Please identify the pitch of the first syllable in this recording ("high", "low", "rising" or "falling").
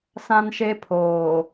high